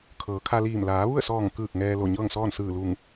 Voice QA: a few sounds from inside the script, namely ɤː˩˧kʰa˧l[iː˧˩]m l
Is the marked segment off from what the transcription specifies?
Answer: no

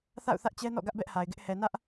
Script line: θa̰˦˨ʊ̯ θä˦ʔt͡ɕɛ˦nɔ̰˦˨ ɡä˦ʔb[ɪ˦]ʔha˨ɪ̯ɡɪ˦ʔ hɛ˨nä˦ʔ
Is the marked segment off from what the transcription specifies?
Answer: yes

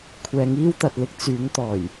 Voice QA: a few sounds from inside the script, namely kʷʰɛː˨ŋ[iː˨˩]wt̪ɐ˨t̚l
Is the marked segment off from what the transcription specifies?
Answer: yes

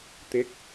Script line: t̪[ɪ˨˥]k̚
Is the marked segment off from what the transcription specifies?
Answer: no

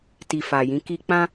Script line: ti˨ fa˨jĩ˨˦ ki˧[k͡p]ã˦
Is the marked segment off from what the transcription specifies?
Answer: no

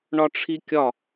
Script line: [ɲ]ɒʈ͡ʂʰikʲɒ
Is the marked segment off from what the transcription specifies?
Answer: yes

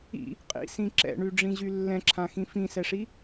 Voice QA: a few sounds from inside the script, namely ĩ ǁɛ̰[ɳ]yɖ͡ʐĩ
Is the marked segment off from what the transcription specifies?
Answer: no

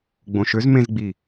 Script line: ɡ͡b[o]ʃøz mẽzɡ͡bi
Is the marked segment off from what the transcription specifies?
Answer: yes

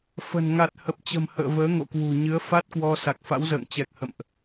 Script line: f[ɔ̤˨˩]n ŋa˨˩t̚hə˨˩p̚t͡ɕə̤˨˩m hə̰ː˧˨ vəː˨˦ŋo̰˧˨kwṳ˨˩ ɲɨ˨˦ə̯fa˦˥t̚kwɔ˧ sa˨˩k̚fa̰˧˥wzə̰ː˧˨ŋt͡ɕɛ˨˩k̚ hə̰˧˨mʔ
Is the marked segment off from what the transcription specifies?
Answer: yes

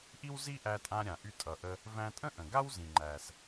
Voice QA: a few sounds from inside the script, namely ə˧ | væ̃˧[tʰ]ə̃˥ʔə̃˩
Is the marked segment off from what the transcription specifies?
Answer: yes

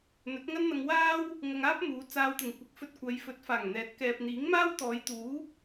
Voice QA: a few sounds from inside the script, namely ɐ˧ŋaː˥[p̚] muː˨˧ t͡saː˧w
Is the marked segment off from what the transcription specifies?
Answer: no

